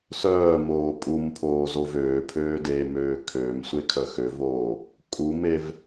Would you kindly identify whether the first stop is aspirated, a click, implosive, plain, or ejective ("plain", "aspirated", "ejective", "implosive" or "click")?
ejective